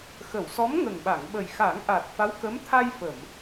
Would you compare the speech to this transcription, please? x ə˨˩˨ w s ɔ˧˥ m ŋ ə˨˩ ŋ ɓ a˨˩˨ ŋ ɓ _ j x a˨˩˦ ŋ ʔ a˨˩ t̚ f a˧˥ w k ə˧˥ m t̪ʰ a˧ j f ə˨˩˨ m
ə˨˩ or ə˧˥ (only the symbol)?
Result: ə˨˩